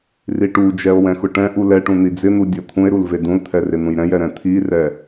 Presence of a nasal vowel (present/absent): present